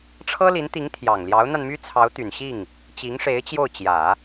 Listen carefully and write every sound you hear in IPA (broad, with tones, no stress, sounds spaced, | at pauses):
ʈ͡ʂʰ ɤ˥ l i˧˥ n t̪ i˧˥ ŋ t̪ʰ j ɑ˨˩ ŋ l j ɑ˧˥ ʊ̯ n̪ a˧ n m y˥ t͡sʰ ɑ˧˥ ʊ̯ t̪ y˨˩ n ɕ i˥˩ ŋ | t͡ɕ i˧˥ ŋ ʂ e˧˥ ɪ̯ t͡ɕ j o˥˩ ʊ̯ t͡ɕ j ä˨˩˦